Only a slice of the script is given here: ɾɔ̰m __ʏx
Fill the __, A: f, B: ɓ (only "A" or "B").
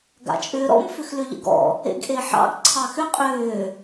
A